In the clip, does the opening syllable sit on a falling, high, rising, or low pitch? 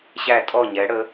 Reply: falling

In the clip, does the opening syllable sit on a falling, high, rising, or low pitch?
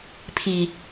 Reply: low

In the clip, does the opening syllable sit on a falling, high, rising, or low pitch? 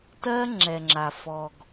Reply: high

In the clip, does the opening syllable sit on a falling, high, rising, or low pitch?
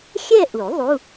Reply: falling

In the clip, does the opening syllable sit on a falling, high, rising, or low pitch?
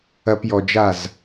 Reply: low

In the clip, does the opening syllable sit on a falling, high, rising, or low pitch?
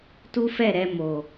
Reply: high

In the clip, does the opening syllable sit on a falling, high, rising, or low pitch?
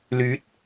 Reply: rising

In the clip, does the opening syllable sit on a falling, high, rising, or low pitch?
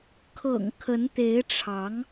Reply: low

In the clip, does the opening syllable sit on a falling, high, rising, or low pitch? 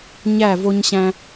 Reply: falling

